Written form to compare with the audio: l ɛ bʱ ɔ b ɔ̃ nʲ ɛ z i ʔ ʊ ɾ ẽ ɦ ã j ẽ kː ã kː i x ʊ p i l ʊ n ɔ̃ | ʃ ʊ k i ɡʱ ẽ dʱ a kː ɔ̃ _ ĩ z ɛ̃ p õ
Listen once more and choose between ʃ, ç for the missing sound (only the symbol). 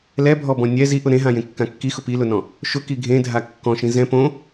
ʃ